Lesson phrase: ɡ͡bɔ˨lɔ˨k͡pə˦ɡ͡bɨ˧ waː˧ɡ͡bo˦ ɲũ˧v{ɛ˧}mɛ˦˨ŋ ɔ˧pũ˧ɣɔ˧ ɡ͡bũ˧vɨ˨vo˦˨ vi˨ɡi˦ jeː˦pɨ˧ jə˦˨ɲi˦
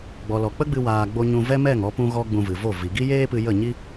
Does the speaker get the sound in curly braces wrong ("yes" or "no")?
yes